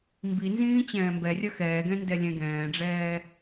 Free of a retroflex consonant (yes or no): no